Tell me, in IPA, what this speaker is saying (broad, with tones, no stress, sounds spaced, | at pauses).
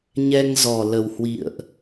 ɲ ɛ˧ ŋ z ɔ˨˩ l ə˨˩ w h w ḭ˧˨ ə̯ ʔ